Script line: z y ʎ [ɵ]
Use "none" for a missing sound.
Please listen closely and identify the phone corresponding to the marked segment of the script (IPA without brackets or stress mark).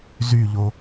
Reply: o